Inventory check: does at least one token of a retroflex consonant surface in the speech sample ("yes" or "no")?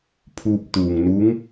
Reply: no